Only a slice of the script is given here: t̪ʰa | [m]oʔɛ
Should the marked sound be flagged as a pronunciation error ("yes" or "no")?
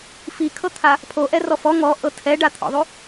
yes